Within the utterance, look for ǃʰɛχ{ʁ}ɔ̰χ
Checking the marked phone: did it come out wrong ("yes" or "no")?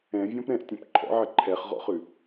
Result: no